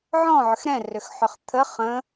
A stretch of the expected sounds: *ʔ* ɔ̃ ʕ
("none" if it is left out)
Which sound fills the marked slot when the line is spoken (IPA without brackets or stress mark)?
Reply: ʕ